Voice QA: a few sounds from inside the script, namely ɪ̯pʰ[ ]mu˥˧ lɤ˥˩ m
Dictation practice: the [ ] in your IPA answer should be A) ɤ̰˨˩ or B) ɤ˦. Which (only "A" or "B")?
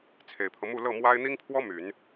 B